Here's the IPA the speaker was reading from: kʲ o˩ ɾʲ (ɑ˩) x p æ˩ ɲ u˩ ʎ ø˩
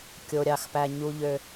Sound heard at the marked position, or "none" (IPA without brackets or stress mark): ɑ˩